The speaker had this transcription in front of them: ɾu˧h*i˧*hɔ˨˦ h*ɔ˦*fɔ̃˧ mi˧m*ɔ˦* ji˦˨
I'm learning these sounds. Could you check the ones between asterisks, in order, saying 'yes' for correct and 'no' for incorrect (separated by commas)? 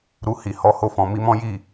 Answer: no, no, no